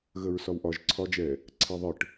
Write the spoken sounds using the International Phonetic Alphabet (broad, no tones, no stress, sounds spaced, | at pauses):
ɣ ə ɹ s ɒ w ʔ ɒ ʒ ǀʰ ɒ d͡ʒ ɛ | ǀʰ ɛ ðˤ ɯ ʈ